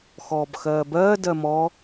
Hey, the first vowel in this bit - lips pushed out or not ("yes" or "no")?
yes